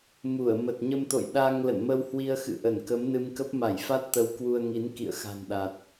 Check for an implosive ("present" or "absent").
present